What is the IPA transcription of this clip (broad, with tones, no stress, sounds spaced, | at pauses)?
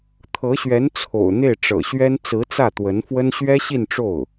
t̪ʰ ɤ˧˥ ɕ ɥ ɛ˧˥ n t͡sʰ o̰˨˩ ʊ̯ n̪ e˥˩ ɪ̯ ʈ͡ʂ ɤ̰˨˩ ɕ ɥ ɛ˥ n t͡s ɹ̩˧˥ t͡s ä˥˩ t̪ w ə˧˥ n f w ə˥ n ɕ ɥ ɛ˥ ɕ i˥˧ n ʈ͡ʂ o˥˩ ʊ̯